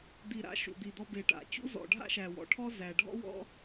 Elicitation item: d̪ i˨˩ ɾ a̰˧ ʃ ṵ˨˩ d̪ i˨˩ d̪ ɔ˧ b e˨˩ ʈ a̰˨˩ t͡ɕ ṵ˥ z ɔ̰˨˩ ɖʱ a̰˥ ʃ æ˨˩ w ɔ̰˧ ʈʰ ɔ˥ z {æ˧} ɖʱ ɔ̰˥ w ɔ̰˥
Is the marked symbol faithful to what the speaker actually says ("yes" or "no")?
yes